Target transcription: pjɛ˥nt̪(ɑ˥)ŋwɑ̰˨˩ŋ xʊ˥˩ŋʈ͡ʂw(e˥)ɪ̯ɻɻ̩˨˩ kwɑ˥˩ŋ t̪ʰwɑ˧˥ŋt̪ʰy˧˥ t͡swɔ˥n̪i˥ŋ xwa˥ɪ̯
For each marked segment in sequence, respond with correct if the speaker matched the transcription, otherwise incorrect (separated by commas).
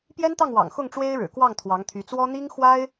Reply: incorrect, correct